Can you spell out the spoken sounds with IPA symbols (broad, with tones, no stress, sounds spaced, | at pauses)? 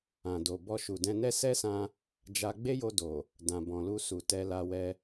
ã˨ d o˨ b ɔ˧ ʃ u˨ d ɛ̃˧ n ɛ˦ s ɛ˦ s ã˧ | d͡ʒ a˧ ɡ͡b e˦ j o˧ d o˨ | d ã˨ b ɔ̃˨ l u˧ s u˨ t ɛ˧ l a˧ w ɛ˧